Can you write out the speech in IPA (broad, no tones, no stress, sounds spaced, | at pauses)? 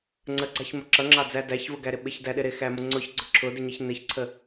ŋ͡ǀ ə ɡ͡ǀ ɑ ç m ə ǁ ʌ ŋ͡ǁ ɑ d͡z æ d æ ç v ʊ ɡ æ ɾ ɪ ɓ ɪ ç d æ ɗ ɪ ɾ ɪ x æ m ʊ ŋ͡ǀ ʊ ç ɡ͡ǀ ʊ ǁʰ ʊ d ɪ ɲ ɪ ç n ɪ ç ǀʰ ə